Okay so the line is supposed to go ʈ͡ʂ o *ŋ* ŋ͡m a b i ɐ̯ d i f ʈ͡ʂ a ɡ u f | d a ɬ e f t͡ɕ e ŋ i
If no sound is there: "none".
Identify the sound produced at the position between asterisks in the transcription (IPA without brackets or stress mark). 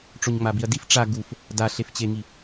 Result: ɲ